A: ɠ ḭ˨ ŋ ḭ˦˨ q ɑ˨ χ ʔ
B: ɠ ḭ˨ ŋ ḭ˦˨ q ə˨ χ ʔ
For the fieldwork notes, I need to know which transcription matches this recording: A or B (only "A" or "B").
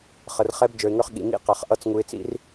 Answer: A